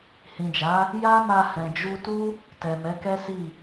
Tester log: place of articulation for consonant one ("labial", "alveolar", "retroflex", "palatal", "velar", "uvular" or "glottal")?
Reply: glottal